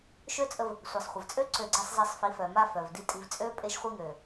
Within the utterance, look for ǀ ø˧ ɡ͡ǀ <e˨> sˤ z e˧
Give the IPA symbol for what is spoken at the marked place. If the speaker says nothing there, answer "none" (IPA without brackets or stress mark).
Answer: e˧